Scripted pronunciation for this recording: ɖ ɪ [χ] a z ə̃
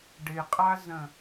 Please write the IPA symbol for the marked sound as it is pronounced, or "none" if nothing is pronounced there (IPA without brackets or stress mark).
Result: qʼ